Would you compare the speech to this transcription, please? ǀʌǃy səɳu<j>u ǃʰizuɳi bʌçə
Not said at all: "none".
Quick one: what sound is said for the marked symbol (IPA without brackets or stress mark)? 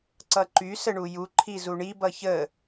j